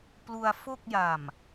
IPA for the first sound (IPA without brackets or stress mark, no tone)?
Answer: p